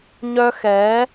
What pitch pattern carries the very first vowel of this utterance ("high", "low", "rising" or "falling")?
high